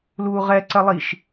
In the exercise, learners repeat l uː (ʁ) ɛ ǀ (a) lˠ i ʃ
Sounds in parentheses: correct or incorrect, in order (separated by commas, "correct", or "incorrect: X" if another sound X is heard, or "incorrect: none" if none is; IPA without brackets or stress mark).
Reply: correct, incorrect: ɐ